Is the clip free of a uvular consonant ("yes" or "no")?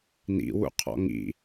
no